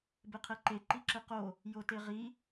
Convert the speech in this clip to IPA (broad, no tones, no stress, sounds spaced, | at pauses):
b e qʰ ɛ ǃ e ǃ i ǁ ɘ q o | j o t e ʁ i